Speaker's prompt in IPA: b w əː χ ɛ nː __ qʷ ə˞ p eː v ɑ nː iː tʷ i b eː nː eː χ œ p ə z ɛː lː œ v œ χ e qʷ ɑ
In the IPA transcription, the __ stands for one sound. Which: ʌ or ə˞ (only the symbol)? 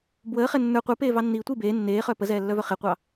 ə˞